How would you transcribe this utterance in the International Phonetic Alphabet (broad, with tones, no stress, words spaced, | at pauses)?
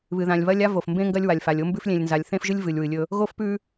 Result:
βɨ˨ðã˨lʲβɐ˦lʲ a˦vo˨fmbẽ˦ ŋɡɐ˦lʲwa˨lʲfa˨lʲ o˦mbʉ˦f lʲẽ˨lʲnza˨lʲθẽ˦fʒɨ˦lʲ vɨ˨lʲwɨ˨lʲɵ˦ | ɣo˦fpʉ˦